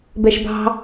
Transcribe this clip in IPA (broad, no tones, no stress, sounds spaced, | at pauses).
b ɛ ʃ b ɑ̤